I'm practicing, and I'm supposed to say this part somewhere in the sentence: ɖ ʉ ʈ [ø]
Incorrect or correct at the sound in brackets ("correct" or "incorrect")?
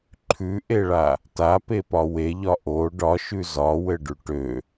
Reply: correct